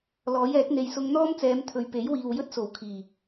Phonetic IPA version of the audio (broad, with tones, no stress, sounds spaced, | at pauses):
l ɔː˨˥ j ɛː˨˥ k̚ n̪ e˨ j s ʊ˧ ŋ n̪ ɔː˥ m t͡s ɛː˨˧ m t̪ʰ ɵ˨ ɥ p e˨˥ j w iː˨ w j ɵ˥ t̚ s o˨˩ w kʰ iː˨˩